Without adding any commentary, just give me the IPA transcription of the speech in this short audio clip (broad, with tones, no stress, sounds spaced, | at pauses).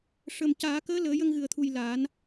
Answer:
ʂ ə˨˩ m c aː˨˩˦ k əː˧˥ l əː˨˩˦ j ə˧ ŋ ɣ ɨ˨˩ ə̯ t̪ʰ u˨˩ j l a˨˩˦ n